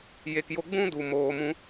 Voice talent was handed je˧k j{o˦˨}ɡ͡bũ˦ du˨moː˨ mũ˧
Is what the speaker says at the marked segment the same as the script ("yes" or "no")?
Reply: no